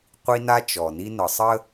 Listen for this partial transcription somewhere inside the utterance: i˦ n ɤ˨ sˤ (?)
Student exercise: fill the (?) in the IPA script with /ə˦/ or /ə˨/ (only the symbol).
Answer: ə˦